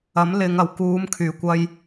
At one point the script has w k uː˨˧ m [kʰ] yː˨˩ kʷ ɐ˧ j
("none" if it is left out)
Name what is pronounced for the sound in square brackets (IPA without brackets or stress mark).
kʰ